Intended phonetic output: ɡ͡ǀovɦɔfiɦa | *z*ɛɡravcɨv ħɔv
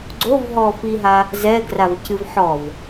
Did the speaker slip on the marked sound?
no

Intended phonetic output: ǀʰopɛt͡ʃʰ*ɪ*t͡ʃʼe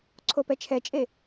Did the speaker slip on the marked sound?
yes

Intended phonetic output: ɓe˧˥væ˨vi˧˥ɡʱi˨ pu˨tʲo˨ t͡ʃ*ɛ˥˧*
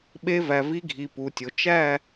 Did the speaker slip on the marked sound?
yes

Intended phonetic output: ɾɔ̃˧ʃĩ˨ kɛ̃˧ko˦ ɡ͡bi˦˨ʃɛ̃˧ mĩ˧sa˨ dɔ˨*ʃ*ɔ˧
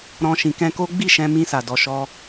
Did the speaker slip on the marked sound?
no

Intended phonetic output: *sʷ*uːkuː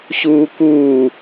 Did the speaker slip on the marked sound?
yes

